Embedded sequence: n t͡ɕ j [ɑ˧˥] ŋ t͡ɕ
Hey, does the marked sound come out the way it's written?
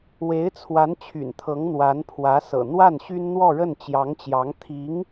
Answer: yes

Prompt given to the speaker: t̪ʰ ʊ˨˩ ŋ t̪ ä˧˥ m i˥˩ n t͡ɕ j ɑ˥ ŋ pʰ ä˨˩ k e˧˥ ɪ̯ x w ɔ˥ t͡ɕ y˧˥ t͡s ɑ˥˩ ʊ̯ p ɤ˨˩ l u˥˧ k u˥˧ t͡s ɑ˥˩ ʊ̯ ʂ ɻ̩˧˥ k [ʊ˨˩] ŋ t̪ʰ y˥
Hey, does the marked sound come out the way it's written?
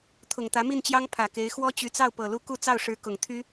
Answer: yes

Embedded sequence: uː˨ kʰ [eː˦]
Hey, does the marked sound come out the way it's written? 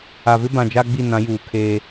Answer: yes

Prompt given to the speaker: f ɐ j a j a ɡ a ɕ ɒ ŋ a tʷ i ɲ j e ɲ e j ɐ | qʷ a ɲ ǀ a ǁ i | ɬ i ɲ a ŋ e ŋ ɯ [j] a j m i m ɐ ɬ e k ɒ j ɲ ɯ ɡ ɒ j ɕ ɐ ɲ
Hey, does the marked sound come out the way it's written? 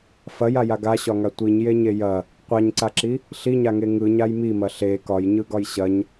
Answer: no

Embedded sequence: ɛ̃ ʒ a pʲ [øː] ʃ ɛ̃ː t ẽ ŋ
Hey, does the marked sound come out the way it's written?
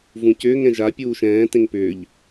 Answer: no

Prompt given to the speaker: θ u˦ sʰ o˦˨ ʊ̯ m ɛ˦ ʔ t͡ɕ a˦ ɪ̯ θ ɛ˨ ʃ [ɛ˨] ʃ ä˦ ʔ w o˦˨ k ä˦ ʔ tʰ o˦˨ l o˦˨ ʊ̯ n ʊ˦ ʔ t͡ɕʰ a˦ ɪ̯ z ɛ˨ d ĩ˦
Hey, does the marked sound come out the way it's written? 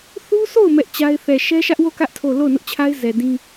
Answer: no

